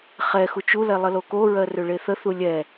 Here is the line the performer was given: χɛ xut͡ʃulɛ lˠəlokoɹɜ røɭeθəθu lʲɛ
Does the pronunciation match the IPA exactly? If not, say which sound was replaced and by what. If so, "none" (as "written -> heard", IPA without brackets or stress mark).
none